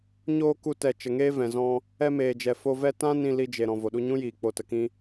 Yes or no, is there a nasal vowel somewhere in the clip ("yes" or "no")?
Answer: yes